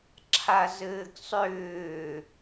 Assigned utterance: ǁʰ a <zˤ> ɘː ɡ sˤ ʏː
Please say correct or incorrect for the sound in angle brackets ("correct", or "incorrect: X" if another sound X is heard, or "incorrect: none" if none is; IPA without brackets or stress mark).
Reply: incorrect: z